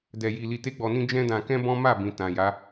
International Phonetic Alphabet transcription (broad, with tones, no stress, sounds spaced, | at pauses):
d ɛ˧ j i˧ l i˧ t e˦ ɡ͡b ɔ˧ n ĩ˦ d͡ʒ ɛ̃˦ d ã˧ k ɛ̃˦ b ɔ̃˦ m a˦˨ b ĩ˨ t ã˨ j a˨˦